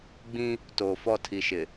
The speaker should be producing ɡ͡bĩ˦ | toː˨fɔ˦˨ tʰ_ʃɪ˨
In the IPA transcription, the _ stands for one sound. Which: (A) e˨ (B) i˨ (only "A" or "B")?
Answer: B